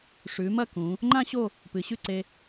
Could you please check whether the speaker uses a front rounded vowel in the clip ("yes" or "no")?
no